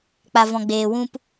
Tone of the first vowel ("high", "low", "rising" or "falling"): low